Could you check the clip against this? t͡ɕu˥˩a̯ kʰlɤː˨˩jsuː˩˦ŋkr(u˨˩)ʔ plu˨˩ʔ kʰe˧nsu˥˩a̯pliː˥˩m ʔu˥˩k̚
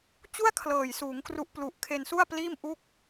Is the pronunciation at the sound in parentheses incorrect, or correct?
incorrect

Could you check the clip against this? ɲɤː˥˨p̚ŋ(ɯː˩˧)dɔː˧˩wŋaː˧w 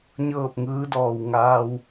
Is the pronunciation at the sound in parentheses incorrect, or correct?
incorrect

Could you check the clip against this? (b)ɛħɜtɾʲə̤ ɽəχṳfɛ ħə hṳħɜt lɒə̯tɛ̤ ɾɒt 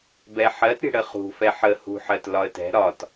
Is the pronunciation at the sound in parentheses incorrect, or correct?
correct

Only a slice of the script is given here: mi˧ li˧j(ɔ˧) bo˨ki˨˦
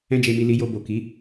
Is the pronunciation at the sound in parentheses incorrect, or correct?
incorrect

